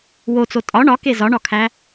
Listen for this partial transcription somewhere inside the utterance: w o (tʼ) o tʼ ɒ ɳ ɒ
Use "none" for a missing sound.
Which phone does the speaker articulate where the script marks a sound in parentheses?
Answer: t͡s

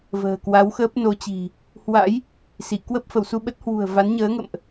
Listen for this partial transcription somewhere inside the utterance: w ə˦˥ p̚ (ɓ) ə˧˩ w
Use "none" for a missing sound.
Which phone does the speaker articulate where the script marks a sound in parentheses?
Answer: f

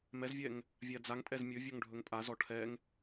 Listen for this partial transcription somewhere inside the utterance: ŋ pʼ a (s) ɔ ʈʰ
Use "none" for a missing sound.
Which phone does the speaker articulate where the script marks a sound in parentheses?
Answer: z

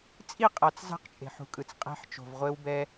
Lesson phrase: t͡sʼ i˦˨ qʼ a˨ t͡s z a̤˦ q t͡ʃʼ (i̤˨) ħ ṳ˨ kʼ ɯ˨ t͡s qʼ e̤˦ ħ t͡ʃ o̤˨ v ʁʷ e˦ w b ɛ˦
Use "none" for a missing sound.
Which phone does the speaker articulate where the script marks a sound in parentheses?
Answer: e̤˨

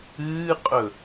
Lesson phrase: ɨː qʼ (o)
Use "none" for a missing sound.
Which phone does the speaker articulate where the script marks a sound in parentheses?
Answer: ɵ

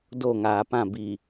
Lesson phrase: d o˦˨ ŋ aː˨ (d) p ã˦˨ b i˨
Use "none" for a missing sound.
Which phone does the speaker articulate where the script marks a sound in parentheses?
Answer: none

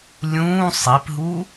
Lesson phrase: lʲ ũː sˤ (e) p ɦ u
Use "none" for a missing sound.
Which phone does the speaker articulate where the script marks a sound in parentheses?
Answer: i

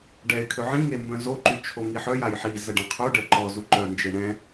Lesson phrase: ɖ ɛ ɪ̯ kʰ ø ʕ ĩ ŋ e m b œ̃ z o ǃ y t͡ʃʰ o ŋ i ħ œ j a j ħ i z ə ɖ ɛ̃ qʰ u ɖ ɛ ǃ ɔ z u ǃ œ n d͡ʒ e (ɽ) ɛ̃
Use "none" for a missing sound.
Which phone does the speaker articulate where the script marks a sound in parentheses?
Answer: ɳ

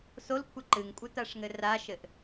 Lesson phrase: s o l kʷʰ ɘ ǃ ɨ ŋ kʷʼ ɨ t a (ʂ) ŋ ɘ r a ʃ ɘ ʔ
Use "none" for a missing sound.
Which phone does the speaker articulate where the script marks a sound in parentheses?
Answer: ʂ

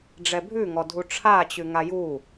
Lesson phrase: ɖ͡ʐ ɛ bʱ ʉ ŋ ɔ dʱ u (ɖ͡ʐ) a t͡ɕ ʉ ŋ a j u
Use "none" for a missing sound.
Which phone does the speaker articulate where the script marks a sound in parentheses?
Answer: ʈ͡ʂʰ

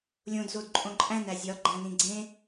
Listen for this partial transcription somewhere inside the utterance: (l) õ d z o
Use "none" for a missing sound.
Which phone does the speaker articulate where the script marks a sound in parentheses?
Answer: lʲ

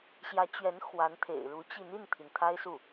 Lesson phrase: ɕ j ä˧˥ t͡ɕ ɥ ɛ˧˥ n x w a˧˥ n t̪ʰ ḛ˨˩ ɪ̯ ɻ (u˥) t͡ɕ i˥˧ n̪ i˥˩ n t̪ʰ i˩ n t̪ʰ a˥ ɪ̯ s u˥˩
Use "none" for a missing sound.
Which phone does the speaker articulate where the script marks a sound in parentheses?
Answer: u˧˥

